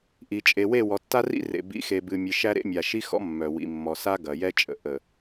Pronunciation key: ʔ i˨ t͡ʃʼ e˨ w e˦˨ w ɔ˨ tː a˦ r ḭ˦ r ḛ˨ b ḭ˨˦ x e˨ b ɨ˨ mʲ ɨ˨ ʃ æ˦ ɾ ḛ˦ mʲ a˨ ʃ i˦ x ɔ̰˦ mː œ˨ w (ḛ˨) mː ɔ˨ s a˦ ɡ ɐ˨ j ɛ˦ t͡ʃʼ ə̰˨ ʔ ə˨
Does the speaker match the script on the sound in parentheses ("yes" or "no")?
no